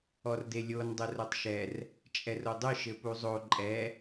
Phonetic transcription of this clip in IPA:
ɔ r d e lʲ o n dˤ ɘ r o tˤ ʃ ɛ r | t͡ʃʼ ɛ r o dˤ ɨ ʃ ɘ p u zˤ o ǃʼ ɛ

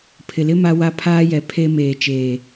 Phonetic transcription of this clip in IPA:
pʰ ɪ˨ l ɪ˦ m a˦ w a˦ pʰ aː˦ j ɛ˨ pʰ e˦ m eː˨ t͡ʃ eː˨

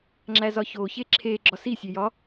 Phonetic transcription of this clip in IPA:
ŋ͡ǁ æ z ɒ ç o ç e ǁʰ e ɡ͡ǁ ɒ s i sʲ e j ɒ

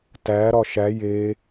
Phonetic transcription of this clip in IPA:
t æ ɾ ɒ ʃ æ j e

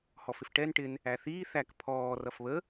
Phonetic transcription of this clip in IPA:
h ɔ f ɪ f ʈ ɛ n ʈ ɪ n | æ θ iː θ æ k pʰ ɔː r ʌ f β ə

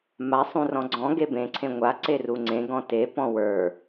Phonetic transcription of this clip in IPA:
m a sˤ ũ r ɔ̃ ɡ͡ǀ ɔ̃ ɡ e b ẽ ǀʰ ẽ ŋʷ a ǀ e r u ŋ͡ǀ ẽ ɡ ɔ̃ t e p ɔ̃ w ə˞

